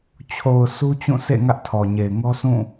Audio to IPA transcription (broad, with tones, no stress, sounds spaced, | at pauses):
t͡ɕʰ o˨ ʊ̯ s u˦ t͡ɕ ũ˦˨ sʰ ḛ˦˨ ŋ ä˦ ʔ tʰ ɔ˨ ɲ e˨ ɪ̯ ŋ ɔ˦ sʰ ũ˦˨